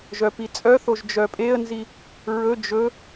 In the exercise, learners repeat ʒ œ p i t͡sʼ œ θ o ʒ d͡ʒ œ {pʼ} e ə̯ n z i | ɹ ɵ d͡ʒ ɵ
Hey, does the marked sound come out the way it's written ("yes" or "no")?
yes